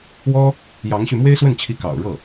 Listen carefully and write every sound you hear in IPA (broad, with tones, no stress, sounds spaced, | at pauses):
w ɔ˥ | j ɑ˧˥ ŋ ɕ y˧ m w e˥ ɪ̯ s w ə˥˩ n t͡ɕʰ i˧˥ k ɑ̰˨˩ ʊ̯ ɻ ɤ˥˩